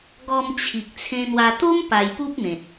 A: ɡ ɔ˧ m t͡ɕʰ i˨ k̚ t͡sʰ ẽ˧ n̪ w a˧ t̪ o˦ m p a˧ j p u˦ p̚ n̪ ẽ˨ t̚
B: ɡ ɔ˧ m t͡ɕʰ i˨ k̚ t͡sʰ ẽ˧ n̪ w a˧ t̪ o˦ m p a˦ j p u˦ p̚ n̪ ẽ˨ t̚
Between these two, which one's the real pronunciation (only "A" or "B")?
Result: A